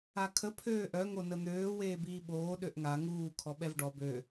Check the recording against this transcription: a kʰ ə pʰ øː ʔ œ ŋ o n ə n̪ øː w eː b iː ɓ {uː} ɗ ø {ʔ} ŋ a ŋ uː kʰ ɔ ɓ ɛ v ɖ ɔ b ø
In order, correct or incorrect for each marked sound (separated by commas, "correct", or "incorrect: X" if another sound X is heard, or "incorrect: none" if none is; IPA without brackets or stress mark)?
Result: incorrect: oː, correct